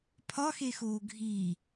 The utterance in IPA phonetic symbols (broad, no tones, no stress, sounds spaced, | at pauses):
pʰ ɒ x e x oː ɡʱ i